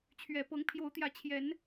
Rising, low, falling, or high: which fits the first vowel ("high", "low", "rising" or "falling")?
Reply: low